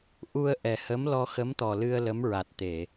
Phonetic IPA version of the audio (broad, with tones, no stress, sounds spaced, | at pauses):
ʔ u˧ ə̯ ʔ ɛ˨˩ h ə˧˥ m l ɔ˧ x ə˧˥ m t̪ ɔ˨˩ l ɨ˧ ə̯ l ə˧˥ m ɹ a˨˩ t̚ t̪ e˨˩˨